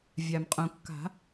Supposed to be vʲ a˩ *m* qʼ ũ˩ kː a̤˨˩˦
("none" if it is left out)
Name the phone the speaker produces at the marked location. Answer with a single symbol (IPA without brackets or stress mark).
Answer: m